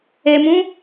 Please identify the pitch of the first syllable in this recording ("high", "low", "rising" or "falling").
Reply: low